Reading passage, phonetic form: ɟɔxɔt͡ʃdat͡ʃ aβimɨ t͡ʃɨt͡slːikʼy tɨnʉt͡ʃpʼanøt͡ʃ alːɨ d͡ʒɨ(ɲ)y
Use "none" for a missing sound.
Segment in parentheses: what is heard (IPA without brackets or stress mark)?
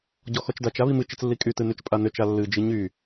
ɲ